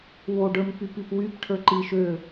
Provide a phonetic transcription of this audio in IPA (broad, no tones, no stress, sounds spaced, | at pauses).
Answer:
w o ɖ ə˞ m p y p i p w y p ʈʰ ə˞ ǃ i ʃ ø